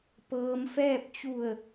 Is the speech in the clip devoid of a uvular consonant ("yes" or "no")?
yes